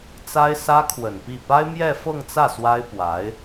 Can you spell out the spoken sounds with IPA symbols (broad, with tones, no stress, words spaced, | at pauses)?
t͡sa˥ɪ̯sä˥kʰwə˨˩npi˥˩ pa˥ɪ̯mjɛ˥˧fɤ˥˧ŋt͡sä˥˩ swa˥ɪ̯pwa˧˥ɪ̯